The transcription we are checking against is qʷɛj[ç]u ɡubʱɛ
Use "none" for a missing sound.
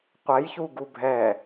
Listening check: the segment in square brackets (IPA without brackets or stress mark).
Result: ç